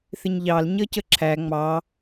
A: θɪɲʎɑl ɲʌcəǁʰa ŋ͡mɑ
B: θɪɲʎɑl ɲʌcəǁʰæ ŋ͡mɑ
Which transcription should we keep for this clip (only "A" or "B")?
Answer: B